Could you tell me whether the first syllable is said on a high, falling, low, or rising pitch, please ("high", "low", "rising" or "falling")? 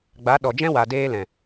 rising